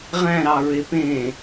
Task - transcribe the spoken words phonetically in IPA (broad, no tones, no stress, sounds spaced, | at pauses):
ʁ æ̃ ɾ ɑ ɹ e p ẽ